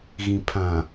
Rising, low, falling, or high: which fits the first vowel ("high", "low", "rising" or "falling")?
low